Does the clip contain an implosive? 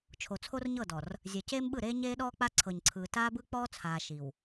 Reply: yes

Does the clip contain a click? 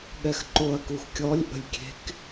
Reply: yes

